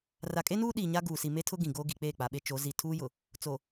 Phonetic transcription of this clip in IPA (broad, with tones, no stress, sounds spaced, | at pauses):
r a˨ kʼ e˦ n uː˦ ɗ iː˨ ɲ a˦ ɡ uː˨ s i˨ m e˦ tʰ ʊ˦ ɡ ĩ˨ ɡ oː˦ ɡ i˨ k͡p eː˦˨ k͡p a˨ ɓ e˦ t͡ʃ o˨˦ z i˨ tʰ uː˦ j ʊ˨ | t͡s o˨